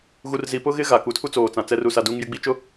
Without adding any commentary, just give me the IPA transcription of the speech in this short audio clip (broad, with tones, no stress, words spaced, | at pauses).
ɣu˨rzi˨pʊ˦ɣɪ˦ ɣa˨ku˨tʰu˦ t͡soː˨t͡sã˨ t͡sɛ˦ru˦sa˦ duː˦ŋjɪ˦ɡ͡bi˦t͡ʃʊ˦